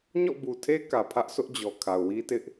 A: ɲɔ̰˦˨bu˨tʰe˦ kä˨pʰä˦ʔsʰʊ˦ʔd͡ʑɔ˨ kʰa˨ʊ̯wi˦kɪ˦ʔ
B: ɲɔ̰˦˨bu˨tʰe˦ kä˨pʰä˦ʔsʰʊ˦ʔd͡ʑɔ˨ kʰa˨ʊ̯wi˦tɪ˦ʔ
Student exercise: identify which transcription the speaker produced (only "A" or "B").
B